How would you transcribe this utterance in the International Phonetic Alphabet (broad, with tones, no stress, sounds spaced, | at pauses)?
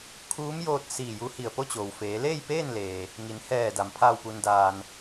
kʰ uː˧˥ m j oː˧ t̚ s iː˧˩ j u˧ h i˧˩ ə̯ p o˥˨ t͡ɕ oː˩ w f eː˩˧ l eː˥˨ j p eː˥˨ n l eː˩ | ŋ i˩˧ n h ɛː˧˩ d a˩ m pʰ aː˧˩ w p u˩ n d aː˩ n